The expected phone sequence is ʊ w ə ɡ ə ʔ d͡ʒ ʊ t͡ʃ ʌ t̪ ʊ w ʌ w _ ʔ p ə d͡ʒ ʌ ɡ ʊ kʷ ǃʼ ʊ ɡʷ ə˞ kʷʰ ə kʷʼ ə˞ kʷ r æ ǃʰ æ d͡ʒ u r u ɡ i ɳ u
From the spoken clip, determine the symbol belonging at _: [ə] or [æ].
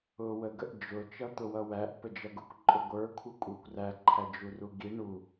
æ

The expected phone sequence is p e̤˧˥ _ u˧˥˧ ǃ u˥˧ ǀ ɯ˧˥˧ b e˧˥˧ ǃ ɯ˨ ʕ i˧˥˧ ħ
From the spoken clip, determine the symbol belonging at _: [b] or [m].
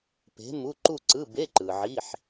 m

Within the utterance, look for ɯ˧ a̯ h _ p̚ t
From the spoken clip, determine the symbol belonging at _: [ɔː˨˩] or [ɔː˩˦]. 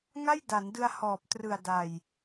ɔː˨˩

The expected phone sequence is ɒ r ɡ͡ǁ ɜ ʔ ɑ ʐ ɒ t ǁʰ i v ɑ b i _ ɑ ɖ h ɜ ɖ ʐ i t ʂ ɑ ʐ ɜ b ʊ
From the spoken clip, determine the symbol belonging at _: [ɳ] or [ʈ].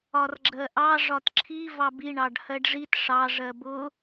ɳ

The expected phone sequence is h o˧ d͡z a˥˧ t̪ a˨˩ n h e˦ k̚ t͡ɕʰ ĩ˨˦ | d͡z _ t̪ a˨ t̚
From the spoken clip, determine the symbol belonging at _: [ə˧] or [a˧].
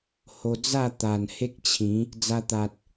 a˧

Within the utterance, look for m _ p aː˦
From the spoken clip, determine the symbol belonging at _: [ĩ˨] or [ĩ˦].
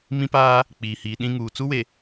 ĩ˦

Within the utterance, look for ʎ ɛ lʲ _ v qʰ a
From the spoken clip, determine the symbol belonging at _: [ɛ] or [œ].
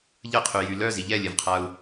ɛ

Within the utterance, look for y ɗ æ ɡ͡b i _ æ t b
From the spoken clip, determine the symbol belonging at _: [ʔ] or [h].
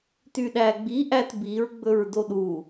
ʔ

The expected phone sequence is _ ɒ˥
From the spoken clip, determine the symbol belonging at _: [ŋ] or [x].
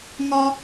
ŋ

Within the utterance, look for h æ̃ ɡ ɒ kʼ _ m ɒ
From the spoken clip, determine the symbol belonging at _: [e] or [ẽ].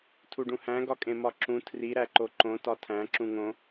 ẽ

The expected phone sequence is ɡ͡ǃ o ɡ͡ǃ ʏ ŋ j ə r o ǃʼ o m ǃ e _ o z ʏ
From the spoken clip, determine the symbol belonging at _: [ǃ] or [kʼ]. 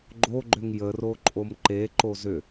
ǃ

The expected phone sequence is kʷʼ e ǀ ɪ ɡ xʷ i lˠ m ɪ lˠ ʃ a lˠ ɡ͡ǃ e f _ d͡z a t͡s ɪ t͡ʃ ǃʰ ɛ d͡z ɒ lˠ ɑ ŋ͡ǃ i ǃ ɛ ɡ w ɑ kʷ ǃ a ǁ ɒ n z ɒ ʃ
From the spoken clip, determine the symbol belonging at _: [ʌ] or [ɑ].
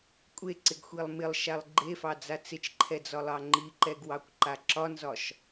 ɑ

